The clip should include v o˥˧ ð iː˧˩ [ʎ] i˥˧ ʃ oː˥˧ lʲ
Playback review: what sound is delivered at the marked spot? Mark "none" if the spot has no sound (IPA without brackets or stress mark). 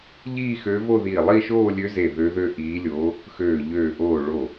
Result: lˠ